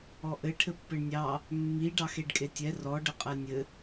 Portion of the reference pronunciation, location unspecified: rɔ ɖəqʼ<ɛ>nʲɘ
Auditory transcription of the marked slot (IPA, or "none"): ɛ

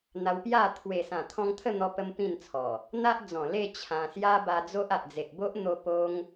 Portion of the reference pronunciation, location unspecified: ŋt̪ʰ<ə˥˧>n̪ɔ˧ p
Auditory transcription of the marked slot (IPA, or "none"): ə˥˧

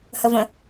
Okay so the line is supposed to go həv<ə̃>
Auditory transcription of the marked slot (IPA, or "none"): ə̃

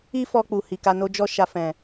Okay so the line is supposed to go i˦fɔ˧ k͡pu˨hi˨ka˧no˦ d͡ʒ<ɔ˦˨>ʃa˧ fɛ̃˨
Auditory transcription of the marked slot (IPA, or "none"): ɔ˦˨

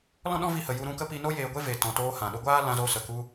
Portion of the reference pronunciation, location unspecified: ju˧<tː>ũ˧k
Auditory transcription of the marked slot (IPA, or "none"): ɾ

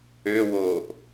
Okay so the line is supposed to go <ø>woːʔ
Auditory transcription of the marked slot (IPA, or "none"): ø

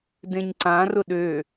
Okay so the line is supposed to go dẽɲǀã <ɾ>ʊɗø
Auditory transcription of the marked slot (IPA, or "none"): r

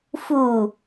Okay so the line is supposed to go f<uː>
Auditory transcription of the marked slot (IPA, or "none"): u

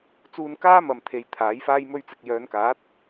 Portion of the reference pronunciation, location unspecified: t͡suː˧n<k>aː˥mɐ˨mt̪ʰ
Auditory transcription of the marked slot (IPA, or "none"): k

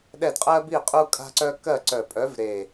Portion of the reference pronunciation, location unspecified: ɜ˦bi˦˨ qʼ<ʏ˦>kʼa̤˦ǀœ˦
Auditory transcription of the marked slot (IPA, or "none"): u˦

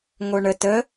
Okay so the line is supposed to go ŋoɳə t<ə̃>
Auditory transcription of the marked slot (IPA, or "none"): ə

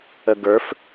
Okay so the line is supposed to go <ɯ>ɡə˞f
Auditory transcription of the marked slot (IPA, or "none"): ə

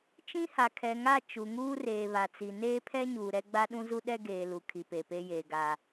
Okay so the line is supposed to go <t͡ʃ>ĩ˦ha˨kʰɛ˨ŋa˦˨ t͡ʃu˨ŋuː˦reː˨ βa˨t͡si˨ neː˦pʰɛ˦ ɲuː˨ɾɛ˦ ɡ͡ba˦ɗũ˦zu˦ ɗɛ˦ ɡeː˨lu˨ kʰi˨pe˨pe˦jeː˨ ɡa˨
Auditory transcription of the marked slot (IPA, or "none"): t͡ʃ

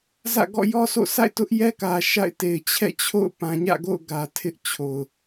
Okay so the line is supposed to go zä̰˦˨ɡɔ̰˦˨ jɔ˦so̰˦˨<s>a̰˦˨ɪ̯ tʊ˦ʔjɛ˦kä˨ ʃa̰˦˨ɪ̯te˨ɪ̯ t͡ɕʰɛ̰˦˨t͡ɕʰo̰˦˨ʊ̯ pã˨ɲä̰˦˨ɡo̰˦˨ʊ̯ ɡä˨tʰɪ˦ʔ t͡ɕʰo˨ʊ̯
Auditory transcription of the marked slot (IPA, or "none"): s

